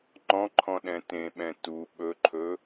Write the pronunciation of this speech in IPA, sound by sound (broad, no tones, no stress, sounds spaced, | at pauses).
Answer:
ŋ͡ǃ ɔ̃ ǃʰ ɔ̃ ɗ ɛ̃ t ẽ ɓ ɛ̃ t u ɓ ɵ ǃʰ ɵ